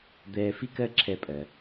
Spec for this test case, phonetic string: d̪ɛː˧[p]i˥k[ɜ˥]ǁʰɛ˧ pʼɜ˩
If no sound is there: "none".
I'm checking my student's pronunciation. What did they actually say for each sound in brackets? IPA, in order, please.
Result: f, ɜ˥

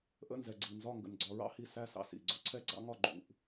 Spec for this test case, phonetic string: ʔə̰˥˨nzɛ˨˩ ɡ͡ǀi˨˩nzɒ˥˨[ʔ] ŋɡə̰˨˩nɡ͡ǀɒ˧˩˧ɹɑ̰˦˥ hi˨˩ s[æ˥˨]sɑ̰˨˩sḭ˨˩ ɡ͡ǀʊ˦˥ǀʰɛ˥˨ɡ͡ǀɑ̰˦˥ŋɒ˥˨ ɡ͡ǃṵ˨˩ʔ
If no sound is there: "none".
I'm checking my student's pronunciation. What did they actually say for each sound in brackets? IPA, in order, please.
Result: none, æ˥˨

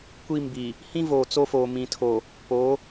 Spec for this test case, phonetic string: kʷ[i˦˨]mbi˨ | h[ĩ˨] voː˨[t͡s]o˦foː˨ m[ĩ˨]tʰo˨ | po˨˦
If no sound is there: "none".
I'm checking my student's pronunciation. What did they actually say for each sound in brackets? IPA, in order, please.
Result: i˦˨, ĩ˦, t͡s, ĩ˨

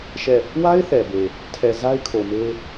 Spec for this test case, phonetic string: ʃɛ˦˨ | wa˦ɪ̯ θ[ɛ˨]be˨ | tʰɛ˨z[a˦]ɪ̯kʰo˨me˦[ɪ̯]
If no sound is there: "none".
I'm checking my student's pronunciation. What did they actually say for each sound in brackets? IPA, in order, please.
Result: ɛ˨, a˦, none

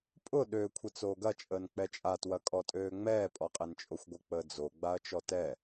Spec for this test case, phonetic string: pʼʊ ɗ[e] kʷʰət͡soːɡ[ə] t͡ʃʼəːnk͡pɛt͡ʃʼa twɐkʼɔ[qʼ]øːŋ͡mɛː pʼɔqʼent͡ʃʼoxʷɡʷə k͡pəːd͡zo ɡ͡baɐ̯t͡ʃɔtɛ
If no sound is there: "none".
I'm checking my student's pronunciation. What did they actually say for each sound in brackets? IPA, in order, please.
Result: ø, ɐ, tʼ

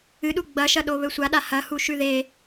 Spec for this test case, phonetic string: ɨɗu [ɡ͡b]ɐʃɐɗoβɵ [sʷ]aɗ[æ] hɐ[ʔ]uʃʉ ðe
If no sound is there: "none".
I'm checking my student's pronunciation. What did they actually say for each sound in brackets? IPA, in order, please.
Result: ɡ͡b, sʷ, a, h

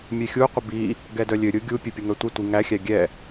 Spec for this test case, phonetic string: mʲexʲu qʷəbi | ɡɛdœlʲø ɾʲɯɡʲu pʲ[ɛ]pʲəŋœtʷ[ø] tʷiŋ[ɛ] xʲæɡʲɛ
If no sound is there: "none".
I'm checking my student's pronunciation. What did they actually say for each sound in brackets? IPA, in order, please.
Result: ø, ɛ, æ

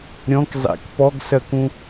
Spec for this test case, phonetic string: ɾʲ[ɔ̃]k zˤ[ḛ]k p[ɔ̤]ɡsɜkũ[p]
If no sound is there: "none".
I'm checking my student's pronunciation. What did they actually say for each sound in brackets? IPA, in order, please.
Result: ɔ̃, ḛ, ɔ, none

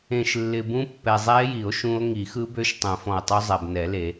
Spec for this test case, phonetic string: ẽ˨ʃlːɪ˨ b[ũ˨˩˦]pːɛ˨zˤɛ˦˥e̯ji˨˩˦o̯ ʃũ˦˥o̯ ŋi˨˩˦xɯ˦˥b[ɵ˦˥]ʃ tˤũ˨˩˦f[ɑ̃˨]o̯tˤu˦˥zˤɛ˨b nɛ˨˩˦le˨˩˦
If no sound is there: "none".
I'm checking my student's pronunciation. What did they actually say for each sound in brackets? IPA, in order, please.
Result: ũ˦˥, ø˦˥, ɔ̃˨

